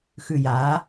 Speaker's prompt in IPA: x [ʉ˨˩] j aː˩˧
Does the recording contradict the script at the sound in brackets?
no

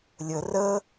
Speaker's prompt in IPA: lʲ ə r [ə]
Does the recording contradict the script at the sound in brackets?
no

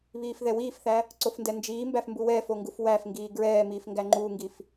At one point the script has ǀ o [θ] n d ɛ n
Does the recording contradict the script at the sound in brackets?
yes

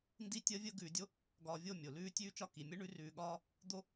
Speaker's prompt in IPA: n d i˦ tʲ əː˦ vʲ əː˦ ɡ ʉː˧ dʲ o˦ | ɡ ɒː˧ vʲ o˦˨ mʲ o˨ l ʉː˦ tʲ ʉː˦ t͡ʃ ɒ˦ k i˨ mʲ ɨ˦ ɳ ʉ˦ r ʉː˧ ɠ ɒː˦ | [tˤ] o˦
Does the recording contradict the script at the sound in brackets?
yes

